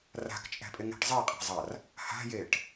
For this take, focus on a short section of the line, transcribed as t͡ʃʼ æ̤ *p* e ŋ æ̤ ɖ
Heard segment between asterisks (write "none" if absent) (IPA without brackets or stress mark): pʼ